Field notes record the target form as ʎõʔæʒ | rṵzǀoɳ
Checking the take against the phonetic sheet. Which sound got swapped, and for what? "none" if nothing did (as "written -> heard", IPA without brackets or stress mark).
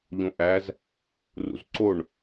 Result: ʒ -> z